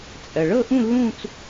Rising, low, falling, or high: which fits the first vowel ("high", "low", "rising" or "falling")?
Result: low